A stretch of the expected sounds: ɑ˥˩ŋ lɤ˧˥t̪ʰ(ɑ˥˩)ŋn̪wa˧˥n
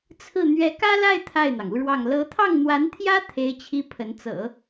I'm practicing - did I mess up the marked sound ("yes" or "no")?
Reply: no